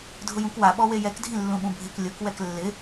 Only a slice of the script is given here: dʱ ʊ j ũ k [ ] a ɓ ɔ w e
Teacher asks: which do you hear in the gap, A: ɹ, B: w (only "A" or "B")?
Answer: B